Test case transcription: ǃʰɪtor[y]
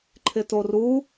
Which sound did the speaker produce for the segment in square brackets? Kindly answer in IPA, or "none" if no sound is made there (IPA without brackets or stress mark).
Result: u